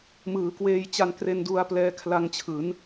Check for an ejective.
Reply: absent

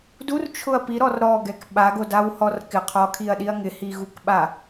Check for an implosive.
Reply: present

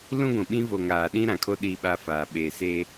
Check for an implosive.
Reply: present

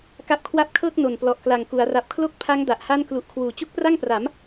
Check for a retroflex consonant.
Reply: absent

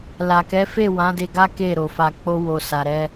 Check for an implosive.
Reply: absent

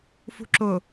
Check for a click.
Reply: present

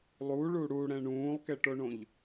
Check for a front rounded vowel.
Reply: absent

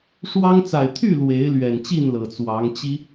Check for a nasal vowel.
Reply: absent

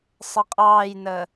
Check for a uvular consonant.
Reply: present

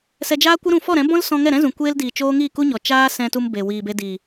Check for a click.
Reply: absent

